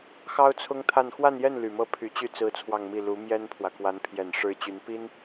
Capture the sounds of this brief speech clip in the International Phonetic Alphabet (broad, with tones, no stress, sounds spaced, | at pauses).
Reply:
x ɑ˥ ʊ̯ t͡sʰ ʊ˥ ŋ t̪ʰ a˥˧ n x w a˥˧ n j ɛ˥˩ n l y˨˩ m ɤ˥˩ pʰ y˧˥ t͡ɕ y˥˩ t͡s ɹ̩˥ t͡sʰ w ɑ˥˧ ŋ m i˥˩ l u˧˥ m j ɛ˥ n pʰ w ä˨ k w a˧˥ n pʰ j ɛ˨˩ n ʂ ɻ̩˥ t͡ɕ y˧˥ n p i˥ n